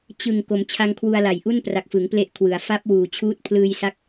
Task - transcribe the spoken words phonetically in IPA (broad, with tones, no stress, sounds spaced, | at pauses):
t͡ɕ ɯ˨˩ ŋ k o˩˦ m t͡ɕʰ a˧ ŋ kʰ w u˧ a̯ l a˨˩ j ʔ u˥˩ n p r a˨˩ k̚ f ɯ˩˦ ŋ p l e˦˥ ʔ kʰ w ɯ˩˦ a̯ f a˦˥ p̚ w uː˨˩ t͡ɕʰ uː˦˥ t̚ pʰ l ɯː˧ j s a˦˥ k̚